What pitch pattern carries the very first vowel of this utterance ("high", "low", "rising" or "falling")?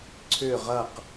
falling